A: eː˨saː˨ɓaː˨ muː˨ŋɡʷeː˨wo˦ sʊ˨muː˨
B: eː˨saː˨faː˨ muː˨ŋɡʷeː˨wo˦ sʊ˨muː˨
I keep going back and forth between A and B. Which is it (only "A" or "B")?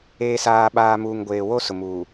A